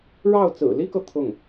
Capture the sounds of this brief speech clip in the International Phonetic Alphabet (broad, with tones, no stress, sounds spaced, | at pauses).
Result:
ɻ ɑ˥˩ ʊ̯ t͡s ɹ̩˨˩ l i˥ k ɤ˨ t̪ʰ ʊ˥˩ ŋ